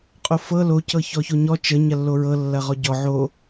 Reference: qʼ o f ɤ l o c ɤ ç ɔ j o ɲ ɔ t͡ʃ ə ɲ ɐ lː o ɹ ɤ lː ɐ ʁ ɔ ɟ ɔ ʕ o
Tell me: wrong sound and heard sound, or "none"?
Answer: j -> ç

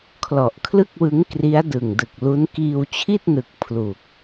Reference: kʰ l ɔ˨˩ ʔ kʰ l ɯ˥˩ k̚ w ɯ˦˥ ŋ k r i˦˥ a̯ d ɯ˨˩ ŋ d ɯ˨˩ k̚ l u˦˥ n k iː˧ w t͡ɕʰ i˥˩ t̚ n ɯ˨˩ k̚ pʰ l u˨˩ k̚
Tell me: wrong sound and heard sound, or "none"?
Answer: none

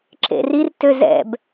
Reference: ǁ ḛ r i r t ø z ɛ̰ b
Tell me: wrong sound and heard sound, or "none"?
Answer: none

